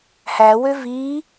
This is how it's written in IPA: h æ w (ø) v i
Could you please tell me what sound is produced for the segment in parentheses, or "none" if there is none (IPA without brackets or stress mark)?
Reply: ø